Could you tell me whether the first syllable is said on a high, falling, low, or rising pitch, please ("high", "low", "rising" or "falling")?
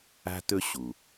high